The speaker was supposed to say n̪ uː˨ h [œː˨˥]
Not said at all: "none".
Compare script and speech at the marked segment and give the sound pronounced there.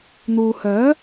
œː˨˥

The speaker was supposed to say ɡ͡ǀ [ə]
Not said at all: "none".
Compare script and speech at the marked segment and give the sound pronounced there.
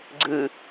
ɨ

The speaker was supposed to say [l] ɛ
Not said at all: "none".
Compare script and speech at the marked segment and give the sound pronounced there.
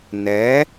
n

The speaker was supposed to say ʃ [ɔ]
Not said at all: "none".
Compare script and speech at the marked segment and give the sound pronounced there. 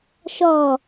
ɔ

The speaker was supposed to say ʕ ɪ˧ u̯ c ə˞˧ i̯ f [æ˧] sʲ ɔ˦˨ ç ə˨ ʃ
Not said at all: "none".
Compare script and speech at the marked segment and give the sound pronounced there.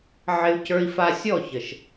a˧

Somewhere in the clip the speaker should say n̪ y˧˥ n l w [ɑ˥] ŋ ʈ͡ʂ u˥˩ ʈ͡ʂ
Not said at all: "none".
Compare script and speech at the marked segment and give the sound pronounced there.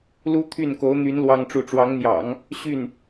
ɑ˥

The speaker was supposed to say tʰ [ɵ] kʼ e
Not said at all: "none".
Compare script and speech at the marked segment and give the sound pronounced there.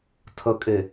ə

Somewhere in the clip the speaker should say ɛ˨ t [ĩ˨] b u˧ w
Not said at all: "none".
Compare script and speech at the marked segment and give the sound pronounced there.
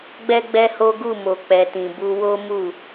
ĩ˨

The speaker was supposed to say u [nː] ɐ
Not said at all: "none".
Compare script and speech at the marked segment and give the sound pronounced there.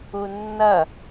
nː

